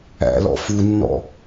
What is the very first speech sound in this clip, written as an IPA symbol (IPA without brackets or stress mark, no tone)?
æ̰